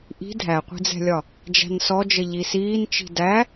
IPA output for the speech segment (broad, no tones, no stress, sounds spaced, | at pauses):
ʔ i̤ dʱ æ qʷ i̤ d͡z ɛ̤ lʲ ɒ | d͡ʒ æ̤ n s ɔ d͡ʒ ə ʎ i s iː n t͡ʃ i̤ d æ